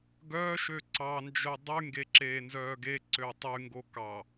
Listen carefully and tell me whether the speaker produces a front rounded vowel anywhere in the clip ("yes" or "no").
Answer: yes